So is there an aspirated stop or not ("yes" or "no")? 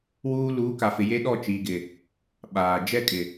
no